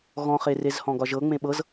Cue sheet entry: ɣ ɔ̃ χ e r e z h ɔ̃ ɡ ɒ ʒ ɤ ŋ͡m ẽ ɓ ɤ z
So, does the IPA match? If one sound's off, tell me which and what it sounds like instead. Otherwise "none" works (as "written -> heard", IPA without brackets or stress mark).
none